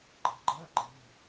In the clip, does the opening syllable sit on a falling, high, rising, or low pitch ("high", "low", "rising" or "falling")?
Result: rising